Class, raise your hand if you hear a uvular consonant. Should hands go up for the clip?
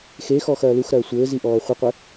yes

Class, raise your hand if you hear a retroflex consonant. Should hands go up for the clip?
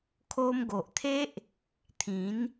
no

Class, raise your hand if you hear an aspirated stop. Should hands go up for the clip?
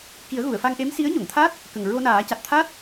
yes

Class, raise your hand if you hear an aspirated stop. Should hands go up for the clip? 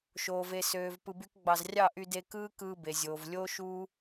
no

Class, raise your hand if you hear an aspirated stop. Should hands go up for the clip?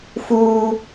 no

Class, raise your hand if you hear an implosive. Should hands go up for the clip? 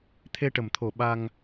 yes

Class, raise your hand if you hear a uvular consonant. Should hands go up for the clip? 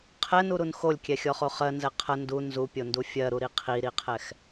yes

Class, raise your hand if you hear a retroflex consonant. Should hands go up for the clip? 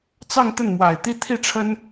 yes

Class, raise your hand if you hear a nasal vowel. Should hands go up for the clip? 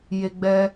no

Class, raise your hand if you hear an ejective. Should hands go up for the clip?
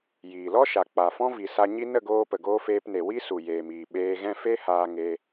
no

